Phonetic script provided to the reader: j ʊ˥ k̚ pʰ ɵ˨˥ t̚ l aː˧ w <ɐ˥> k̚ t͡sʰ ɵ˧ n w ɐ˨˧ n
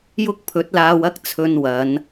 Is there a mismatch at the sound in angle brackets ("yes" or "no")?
no